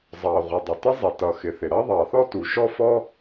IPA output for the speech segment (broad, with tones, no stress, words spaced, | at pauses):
zˤɑ˩ʁʷɪ˩ dˤʊ˩tɪ˥zˤi˩ tʌ˩xɪ˩θɪ˩ ɾʌ˥ ðˤɑ˩θɔ˥ tu˩ʃɔ˥fɔ˥